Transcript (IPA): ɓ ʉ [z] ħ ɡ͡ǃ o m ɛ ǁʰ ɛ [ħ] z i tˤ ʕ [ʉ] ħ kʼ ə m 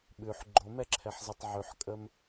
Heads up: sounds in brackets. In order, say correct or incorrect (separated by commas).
incorrect, correct, correct